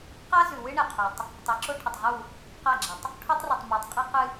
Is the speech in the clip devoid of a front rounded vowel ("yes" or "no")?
yes